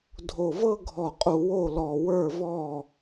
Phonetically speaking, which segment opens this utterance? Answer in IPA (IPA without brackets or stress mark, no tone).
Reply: dʱ